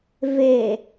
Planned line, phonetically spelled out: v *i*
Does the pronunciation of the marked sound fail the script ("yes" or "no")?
yes